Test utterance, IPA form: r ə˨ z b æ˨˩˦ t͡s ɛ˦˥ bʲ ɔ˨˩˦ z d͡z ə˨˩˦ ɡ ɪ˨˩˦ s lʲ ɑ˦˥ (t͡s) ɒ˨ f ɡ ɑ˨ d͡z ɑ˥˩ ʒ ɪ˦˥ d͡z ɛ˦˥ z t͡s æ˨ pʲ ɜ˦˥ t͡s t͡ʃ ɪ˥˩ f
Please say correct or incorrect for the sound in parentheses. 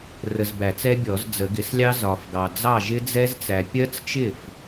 incorrect: z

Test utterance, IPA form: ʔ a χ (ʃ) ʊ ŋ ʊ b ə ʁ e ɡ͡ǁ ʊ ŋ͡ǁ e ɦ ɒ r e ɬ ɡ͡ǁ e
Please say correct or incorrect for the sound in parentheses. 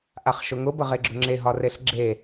correct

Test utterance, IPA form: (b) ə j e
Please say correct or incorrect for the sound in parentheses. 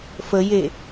incorrect: f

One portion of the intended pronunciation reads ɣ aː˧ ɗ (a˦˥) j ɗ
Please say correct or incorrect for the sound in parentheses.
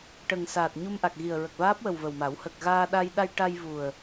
incorrect: a˧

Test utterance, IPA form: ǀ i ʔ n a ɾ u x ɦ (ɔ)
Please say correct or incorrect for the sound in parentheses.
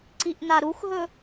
incorrect: ɵ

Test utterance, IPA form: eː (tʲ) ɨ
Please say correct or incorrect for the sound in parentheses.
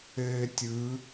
correct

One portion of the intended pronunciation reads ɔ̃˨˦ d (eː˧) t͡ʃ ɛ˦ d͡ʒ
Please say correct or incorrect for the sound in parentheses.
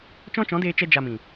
correct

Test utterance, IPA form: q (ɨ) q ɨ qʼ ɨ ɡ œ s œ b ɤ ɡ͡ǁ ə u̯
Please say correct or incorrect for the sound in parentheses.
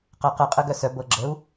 incorrect: ə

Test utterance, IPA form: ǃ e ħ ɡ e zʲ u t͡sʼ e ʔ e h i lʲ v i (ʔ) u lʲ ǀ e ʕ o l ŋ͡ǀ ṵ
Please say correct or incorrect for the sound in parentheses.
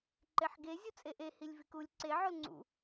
incorrect: k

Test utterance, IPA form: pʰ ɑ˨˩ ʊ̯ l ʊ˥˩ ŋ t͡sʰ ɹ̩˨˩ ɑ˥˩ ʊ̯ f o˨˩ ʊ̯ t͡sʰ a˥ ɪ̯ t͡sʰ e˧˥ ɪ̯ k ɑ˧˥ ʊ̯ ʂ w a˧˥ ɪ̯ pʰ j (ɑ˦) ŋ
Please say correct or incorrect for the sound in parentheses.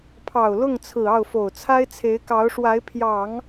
incorrect: ɑ˨˩˦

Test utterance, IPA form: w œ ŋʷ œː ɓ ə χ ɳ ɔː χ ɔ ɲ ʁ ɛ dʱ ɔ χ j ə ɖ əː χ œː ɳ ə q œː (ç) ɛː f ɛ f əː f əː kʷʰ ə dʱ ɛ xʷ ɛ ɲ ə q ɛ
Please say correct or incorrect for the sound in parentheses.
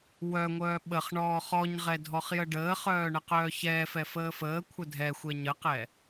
correct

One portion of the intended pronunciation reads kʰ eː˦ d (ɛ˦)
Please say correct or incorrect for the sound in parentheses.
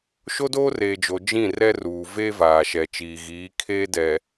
incorrect: ɛ˨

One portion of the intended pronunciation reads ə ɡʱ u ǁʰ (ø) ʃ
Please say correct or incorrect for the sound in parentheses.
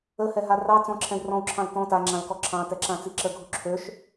correct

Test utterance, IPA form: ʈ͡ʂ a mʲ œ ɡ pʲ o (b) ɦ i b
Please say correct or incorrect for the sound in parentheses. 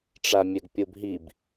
correct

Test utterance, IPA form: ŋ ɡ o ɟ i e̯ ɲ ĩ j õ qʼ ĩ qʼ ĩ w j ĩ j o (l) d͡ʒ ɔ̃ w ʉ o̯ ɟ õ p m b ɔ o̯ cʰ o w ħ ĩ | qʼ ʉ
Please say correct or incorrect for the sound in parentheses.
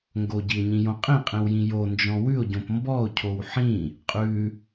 incorrect: n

